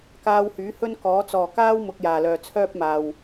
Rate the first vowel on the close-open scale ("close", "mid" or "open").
open